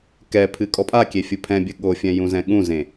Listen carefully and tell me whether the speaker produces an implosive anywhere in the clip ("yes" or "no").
yes